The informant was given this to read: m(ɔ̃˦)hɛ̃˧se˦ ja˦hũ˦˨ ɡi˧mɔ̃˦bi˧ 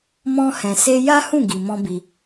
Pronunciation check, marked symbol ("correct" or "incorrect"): correct